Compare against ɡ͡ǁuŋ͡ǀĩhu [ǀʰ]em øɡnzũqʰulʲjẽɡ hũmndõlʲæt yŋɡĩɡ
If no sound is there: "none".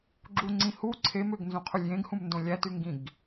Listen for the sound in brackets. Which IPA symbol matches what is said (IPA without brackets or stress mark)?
ǀʰ